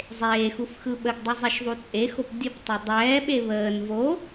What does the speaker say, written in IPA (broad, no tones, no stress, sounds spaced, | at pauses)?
zˤ eː x u f x ɯ ɓ ə ɡ dˤ ɯ zˤ e ʃ ðˤ u t͡sʼ e x o p dʲ ə p tˤ o dˤ ɛː ɓ e β əː n v o